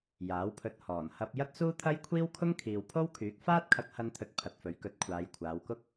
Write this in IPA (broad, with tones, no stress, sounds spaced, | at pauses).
j aː˨˥ w pʰ ɵ˧ t̚ h ɔː˨˩ n h ɐ˧ p̚ j ɐ˥ t̚ s uː˥ t̪ʰ ɐ˥ j kʷʰ iː˥ w kʰ ʊ˥ ŋ kʰ iː˨ w pʰ o˥ w kʰ yː˨˥ k̚ f aː˥ t̚ kʰ ɐ˧ k̚ h ɐ˧ n t̪ʰ ɵ˨ t̚ pʰ ɐ˨ t̚ f ɵ˨˥ ɥ k ɵ˨ t̚ kʷʰ aː˨˧ j kʷʰ aː˨˧ w k ʊ˥ k̚